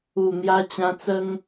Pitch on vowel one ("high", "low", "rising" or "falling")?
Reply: low